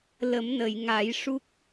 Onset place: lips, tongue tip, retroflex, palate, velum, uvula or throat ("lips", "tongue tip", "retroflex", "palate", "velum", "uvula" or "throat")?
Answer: tongue tip